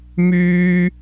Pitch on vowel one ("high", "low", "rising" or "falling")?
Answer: high